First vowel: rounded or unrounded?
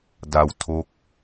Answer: unrounded